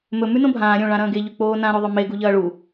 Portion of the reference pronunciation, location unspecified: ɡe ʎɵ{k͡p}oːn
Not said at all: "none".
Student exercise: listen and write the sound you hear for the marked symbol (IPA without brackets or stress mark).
k͡p